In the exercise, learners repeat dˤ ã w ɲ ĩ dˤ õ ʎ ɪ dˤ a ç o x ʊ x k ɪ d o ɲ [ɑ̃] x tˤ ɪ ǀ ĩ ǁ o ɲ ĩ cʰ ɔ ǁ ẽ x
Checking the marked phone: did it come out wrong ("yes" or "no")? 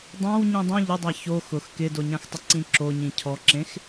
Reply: yes